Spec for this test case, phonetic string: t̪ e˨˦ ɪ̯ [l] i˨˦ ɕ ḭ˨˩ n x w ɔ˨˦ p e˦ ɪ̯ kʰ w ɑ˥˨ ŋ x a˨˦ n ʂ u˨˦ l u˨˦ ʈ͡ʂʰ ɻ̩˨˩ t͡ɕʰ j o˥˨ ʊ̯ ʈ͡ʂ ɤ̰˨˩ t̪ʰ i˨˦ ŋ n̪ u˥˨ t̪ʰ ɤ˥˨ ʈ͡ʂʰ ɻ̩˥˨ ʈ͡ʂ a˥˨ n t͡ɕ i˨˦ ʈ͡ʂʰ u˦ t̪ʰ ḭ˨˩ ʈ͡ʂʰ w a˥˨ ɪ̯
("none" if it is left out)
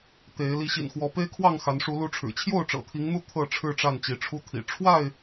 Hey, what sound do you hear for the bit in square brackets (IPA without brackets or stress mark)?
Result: l